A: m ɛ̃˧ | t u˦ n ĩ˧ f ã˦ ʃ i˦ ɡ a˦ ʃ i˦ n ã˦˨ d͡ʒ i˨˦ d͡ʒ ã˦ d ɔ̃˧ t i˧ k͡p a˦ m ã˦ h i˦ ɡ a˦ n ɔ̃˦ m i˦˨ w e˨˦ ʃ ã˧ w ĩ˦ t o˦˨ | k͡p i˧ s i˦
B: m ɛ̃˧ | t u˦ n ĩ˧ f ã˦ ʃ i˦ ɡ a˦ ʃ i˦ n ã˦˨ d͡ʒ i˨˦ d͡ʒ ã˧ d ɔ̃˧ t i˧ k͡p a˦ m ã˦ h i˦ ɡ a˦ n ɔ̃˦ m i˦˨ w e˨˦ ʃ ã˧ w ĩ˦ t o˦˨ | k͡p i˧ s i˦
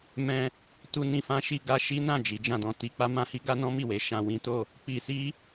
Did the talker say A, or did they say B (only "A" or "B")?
B